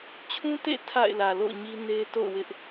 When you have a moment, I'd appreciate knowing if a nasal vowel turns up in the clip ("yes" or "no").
yes